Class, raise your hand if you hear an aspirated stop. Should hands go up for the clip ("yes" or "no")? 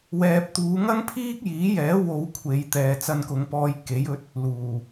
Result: yes